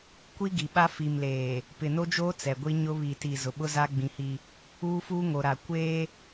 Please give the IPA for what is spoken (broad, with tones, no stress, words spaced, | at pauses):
kʷi˦ɡi˨ɓa˦ fi˨mleː˨ | pɪ˨no˦d͡ʒoː˦ t͡sɛ˨ɡʷi˦ ɲʊ˦ βi˨ti˨ zʊ˨ɓʊ˦za˦ ɡ͡bĩ˦hi˦ | uː˦fuː˦ŋo˨ɾa˨ kʷeː˦